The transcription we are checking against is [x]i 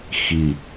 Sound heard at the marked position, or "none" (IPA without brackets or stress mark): x